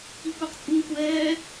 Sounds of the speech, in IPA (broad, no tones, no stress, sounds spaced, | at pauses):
i kʷ a q t͡sʼ u ŋ kʷ ɛː